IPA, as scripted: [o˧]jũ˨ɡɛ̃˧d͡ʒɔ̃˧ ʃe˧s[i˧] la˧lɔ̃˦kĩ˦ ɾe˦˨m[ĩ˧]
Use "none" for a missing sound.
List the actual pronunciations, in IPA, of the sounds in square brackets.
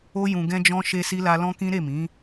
o˧, i˧, ĩ˨˦

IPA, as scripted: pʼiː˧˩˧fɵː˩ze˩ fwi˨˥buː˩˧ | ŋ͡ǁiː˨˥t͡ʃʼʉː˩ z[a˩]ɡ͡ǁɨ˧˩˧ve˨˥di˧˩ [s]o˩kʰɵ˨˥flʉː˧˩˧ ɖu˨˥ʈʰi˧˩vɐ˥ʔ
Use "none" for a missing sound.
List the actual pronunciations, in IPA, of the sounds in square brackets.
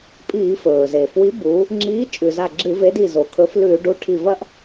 a˧˩, z

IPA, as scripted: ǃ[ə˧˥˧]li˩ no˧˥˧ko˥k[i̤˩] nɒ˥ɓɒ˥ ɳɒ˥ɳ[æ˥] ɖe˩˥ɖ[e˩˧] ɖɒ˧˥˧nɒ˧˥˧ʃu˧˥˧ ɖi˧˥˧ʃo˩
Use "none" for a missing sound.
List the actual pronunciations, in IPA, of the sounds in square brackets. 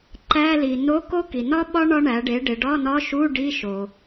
æ˧˥˧, i˩, æ˩˥, e˩˧

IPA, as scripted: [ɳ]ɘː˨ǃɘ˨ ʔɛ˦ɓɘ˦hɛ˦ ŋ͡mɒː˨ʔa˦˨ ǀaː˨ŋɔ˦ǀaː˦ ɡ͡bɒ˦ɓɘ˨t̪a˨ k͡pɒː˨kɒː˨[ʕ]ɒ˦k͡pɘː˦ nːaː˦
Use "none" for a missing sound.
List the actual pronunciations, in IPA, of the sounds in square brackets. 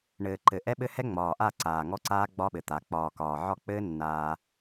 ɳ, ʕ

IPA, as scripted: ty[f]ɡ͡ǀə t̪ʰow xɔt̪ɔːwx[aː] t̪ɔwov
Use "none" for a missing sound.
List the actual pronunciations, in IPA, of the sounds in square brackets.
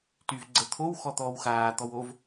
v, aː

